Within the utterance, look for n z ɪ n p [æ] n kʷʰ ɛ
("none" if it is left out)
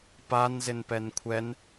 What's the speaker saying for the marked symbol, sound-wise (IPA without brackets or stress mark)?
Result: ɛ